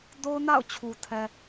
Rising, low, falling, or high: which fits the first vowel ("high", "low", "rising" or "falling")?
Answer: high